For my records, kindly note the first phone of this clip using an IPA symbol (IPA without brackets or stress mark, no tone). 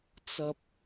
t͡s